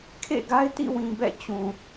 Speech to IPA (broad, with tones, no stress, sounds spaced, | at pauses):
kʰ ḛ˦˨ ɡ a˦ ɪ̯ t ḭ˦˨ w ĩ˨ b ɛ̰˦˨ t͡ɕ ũ˨